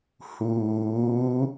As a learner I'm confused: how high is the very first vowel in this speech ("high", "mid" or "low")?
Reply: high